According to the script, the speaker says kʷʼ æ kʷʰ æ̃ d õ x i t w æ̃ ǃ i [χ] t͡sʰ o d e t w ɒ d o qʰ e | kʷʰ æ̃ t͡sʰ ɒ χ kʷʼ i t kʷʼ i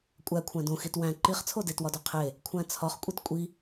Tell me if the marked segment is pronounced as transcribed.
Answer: yes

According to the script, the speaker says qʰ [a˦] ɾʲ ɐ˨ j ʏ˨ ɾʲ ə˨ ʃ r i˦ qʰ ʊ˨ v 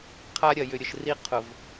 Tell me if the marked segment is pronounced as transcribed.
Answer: yes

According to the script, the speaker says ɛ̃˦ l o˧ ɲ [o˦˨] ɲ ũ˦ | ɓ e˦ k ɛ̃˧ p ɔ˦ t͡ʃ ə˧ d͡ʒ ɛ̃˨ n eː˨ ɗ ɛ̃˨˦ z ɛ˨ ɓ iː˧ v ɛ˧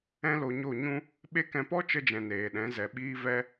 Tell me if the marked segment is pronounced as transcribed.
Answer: yes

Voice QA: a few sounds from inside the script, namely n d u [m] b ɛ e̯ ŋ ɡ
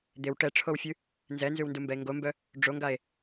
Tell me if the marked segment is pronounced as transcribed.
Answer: yes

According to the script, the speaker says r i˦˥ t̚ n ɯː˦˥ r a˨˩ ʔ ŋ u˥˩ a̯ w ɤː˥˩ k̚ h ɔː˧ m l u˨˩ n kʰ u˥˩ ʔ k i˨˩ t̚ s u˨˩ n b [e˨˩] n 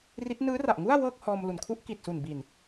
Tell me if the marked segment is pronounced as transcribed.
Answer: no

